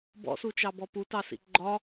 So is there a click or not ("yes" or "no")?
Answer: yes